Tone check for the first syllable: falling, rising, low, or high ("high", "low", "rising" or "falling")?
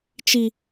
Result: high